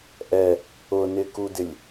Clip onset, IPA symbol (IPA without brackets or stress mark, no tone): ʔ